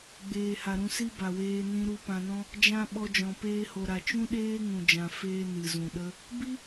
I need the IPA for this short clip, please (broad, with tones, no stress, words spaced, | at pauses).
ɡ͡beː˨ha˨ ɾũ˧si˦ba˨weː˧ nĩ˦ ɾu˧ pã˧nɔ̃˦ | d͡ʒã˧ ɓɔ˧d͡ʒɔ̃˨ peː˧ho˨ ɾa˨ t͡ʃũ˦ɗeː˦ŋũ˨d͡ʒã˨ feː˧ nɨ˨zũ˨ɗə˦ | bi˦